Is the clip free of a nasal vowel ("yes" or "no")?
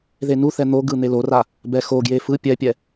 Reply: yes